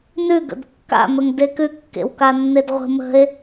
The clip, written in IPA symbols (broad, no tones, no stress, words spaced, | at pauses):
nʉ ɡə̰dkːa̰ mɵŋdekʉ kːḛwkanːedʁʷə̤ mə̤e̯